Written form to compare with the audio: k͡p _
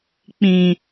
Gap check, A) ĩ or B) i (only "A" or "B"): A